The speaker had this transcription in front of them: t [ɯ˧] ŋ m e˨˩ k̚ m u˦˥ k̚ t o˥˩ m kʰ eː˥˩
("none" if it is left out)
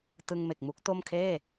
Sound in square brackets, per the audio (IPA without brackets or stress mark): ɯ˧